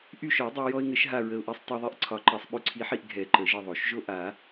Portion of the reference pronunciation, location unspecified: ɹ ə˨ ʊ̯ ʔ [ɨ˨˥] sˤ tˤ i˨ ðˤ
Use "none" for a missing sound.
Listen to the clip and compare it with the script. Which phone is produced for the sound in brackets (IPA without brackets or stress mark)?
ɛ˨˥